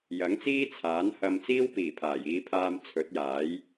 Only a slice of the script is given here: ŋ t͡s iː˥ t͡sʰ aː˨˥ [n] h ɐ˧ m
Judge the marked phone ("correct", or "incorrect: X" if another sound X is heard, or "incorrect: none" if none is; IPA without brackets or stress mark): correct